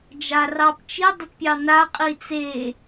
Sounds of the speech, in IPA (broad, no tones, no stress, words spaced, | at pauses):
d͡ʒarɑpt͡ʃi dˤətpʲɑna qʼit͡se